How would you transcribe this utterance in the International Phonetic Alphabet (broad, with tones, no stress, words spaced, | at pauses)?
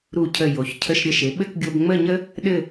ɾu˧˩cʰə˧˩ jo˩˧çcʰə˧ʃɾʲə˧˩ʃe˩˧ ɓɘ˥˧kɡʲo˧bŋ͡mə˥˧ɲə˥ | ɗɘ˥˧